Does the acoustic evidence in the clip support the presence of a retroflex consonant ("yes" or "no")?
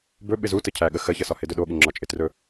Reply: no